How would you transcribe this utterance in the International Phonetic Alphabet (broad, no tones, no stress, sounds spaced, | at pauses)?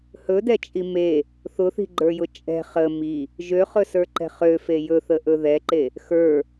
h ɵ d ɛ t͡ʃʼ i m e | θ ʊ θ i̤ ɡ͡ǃ ə˞ j ʊ t͡ʃʼ ɛ̤ χ ə m i | ʒ ø χ ɵ s ə˞ ǃ ɛ̤ χ ø f e j ɵ θ ə ʔ ɵ ð ɛ ǃ e | x ə˞